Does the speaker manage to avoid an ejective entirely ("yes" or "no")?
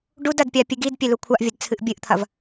yes